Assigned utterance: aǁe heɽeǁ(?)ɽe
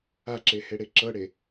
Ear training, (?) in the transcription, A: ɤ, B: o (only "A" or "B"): A